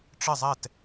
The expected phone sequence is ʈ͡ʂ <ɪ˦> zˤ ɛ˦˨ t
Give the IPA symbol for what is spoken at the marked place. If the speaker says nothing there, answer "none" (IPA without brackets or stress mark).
ɪ˦˨